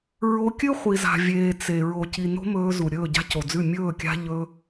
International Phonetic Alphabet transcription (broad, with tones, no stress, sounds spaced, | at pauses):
ɹ o˧ kʲ ɨ˦ χʷ i˨ z a̤˨ vʲ eː˨ t͡s e˨ ɹ o˨ c i˨ n o̤˦ m ɵː˧ z u˨ ɾʲ ɵː˦˨ ɟ a̤˦ c o˨ d͡z ʉ˦˨ mʲ ɵː˦˨ kʲ a̤˦ ʎ ɵ˧